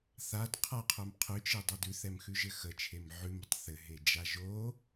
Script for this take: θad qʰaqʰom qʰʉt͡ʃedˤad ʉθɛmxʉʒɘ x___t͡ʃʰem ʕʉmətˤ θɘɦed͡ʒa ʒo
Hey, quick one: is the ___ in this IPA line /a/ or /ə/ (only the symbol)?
ə